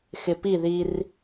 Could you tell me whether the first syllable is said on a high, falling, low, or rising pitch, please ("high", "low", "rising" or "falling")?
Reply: low